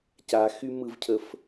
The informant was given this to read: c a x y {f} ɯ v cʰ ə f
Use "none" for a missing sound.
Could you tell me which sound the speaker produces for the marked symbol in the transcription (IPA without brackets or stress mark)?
m